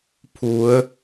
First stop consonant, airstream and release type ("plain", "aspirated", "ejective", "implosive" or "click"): aspirated